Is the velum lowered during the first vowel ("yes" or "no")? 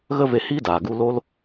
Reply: no